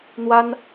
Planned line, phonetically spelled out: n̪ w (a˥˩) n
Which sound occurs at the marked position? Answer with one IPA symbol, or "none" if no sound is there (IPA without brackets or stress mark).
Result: a˥